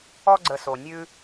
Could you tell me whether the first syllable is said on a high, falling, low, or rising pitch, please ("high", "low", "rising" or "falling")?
high